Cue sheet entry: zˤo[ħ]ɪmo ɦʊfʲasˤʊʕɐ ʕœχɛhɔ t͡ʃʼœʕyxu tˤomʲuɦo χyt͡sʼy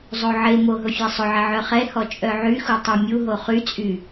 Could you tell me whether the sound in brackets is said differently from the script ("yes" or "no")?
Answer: yes